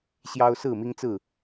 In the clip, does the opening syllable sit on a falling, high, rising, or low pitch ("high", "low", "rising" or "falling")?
high